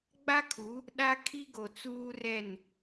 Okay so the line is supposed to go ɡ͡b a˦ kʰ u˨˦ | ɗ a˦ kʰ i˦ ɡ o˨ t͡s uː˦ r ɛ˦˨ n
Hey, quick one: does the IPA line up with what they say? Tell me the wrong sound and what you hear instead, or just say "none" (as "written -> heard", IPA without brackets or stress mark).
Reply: none